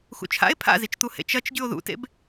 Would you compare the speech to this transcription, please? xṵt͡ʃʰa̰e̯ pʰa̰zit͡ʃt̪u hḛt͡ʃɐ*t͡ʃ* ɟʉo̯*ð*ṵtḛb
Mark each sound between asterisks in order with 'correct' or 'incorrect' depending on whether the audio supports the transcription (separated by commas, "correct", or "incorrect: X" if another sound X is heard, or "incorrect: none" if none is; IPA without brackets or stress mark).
correct, correct